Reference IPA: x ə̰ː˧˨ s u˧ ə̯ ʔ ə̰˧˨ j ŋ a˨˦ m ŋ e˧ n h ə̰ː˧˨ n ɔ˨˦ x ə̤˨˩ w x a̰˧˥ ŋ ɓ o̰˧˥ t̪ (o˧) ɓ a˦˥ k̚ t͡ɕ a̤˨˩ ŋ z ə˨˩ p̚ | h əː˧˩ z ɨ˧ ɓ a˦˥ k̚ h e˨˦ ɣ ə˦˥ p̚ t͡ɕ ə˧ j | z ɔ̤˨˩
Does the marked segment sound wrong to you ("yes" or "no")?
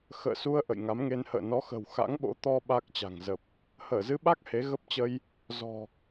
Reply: yes